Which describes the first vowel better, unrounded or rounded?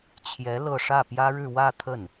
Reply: unrounded